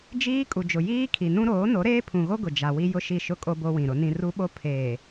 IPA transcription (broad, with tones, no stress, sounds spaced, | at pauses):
d͡ʒ iː˦ kʼ u˨ d͡ʒ ʊ˨ j iː˦ kʰ i˨ n ũ˦ ɾ oː˨˦ n o˨˦ ɾ eː˦ pʰ ũ˨ ɣ o˦ ɡ ʊ˨ d͡ʒ a˨ w i˦ j ʊ˦ ʃ i˦˨ ʃ ʊ˦ kʼ o˦ b o˦ w ĩ˨ ɾ ʊ˨˦ n ĩ˦ r u˦ ɓ o˦ pʰ eː˨